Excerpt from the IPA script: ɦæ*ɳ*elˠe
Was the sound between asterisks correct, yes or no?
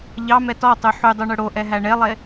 yes